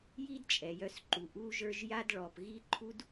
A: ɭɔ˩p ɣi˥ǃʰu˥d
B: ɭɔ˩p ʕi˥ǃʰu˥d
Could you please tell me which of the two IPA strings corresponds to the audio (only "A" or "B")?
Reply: A